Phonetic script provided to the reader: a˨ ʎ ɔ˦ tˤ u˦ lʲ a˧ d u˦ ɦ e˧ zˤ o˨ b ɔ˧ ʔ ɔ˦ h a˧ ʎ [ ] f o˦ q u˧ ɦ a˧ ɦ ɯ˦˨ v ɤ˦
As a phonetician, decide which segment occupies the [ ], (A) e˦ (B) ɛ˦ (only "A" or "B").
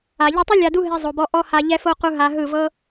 B